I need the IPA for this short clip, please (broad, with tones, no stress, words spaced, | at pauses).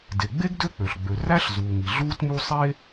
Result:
de˩ɡ͡be˥ɡ dø˥k͡pø˩ɬ ɡ͡bø˩ræ˥ɬ zuː˩ŋi˩ ɮuː˥tmu˥ sˤe˥